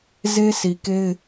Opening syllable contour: high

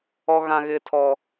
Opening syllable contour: high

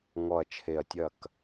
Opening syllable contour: low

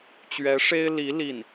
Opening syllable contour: rising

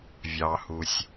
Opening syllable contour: low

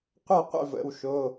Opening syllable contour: falling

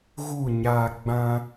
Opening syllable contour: falling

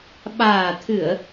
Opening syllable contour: low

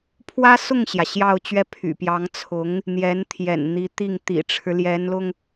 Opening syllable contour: high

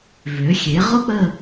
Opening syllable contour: rising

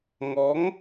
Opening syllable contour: rising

